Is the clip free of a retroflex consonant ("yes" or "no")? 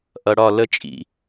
no